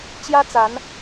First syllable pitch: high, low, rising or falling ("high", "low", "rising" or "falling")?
high